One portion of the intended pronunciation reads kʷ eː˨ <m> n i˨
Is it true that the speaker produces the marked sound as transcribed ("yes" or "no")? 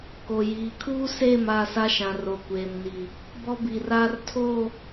yes